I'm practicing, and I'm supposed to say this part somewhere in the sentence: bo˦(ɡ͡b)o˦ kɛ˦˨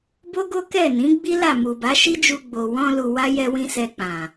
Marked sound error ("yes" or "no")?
yes